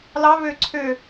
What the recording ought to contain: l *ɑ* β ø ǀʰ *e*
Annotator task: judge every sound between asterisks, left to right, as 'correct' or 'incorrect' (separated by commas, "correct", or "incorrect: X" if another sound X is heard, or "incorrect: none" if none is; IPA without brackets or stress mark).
correct, incorrect: ø